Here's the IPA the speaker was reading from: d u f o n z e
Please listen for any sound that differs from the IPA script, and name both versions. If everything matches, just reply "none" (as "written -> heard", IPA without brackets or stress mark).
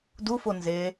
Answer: none